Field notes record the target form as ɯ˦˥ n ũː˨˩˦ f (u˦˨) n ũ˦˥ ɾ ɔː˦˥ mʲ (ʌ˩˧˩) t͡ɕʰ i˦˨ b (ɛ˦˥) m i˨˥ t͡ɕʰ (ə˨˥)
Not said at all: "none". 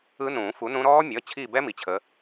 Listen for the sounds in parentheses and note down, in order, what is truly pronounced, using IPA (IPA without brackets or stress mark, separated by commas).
u˨˥, ʌ˩˧˩, ɛ˦˥, ə˨˥